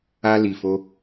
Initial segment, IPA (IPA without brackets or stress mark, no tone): a